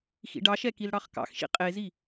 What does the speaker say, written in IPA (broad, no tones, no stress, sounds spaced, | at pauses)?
x ḭ ɖ ɑ ʃ ɛ k i l ɽ ɑ χ k ɑ̰ x ʃ ḭ qʼ e z i